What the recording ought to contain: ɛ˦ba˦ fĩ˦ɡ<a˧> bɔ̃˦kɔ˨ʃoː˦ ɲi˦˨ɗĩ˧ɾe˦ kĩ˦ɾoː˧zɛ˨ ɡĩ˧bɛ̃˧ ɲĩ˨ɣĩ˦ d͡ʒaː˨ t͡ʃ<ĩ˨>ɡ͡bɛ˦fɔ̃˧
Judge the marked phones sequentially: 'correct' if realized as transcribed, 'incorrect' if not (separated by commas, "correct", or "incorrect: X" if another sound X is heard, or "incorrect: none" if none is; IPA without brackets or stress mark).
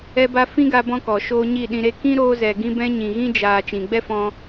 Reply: correct, correct